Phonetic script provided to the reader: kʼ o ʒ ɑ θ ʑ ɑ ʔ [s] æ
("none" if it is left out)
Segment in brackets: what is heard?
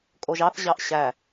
ɕ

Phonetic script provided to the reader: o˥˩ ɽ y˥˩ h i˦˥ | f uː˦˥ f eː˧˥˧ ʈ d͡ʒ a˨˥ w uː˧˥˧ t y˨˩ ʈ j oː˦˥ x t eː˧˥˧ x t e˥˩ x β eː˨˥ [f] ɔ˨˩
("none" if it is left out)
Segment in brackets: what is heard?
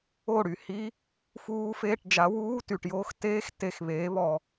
β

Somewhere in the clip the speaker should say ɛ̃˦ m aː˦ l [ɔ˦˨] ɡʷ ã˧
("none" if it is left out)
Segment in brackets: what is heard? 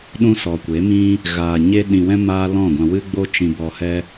ɔ̃˦˨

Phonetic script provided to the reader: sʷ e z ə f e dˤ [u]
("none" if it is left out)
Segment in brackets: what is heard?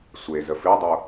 o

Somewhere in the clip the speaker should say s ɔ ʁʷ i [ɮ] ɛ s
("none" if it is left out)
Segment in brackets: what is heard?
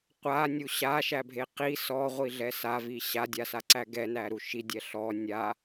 ɮ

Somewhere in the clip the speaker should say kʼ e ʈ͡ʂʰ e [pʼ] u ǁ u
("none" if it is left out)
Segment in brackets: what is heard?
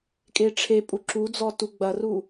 pʼ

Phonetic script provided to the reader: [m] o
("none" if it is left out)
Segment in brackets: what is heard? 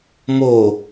m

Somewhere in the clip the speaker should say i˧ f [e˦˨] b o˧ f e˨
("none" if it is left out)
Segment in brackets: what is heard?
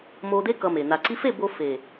e˦˨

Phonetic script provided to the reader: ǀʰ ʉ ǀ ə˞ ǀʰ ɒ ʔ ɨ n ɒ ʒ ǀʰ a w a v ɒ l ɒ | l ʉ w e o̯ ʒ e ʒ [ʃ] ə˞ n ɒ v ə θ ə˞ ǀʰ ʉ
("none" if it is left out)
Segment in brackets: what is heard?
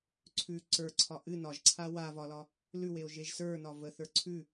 s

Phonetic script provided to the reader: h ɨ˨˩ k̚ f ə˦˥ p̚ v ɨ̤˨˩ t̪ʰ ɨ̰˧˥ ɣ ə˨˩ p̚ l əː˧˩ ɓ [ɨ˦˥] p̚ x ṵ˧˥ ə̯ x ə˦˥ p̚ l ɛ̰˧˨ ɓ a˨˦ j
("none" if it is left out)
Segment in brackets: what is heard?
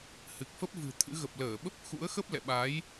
ə˦˥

